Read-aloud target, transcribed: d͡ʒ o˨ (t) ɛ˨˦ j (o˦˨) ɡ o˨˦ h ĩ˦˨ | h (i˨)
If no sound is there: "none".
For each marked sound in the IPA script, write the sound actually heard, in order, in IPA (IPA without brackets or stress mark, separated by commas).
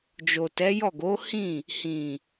t, ɔ˦˨, ĩ˨